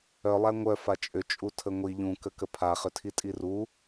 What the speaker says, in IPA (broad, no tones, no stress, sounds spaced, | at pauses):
œ lˠ æ ŋʷ œ f a t͡ʃʼ ʏ t͡ʃʼ u tʰ ə ŋʷ i ʎ ũ k ə k ə pʰ a χ ʏ tʰ i tʼ i r u